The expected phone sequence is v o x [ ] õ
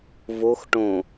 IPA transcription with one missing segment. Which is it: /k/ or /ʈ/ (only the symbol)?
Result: ʈ